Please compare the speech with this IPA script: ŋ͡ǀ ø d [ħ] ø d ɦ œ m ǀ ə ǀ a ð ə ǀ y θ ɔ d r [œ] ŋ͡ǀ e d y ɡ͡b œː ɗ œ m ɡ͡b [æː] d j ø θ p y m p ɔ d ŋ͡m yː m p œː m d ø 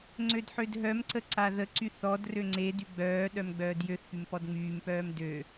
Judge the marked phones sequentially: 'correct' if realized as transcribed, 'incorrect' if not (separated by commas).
correct, incorrect, incorrect